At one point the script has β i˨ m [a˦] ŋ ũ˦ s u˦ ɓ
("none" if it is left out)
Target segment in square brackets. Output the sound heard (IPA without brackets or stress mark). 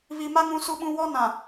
a˦